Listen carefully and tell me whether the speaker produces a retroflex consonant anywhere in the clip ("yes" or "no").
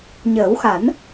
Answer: no